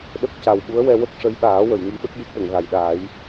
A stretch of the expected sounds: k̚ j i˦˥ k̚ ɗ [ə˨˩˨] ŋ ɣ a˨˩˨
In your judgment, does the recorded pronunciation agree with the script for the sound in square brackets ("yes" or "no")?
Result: yes